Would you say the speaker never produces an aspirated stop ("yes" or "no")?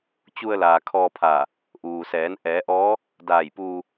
no